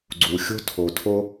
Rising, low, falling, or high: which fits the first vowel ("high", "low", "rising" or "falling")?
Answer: low